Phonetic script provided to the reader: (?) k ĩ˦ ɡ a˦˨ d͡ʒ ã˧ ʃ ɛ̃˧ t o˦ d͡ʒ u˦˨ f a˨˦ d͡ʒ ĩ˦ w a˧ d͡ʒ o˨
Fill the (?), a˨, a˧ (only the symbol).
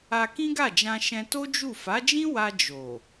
a˧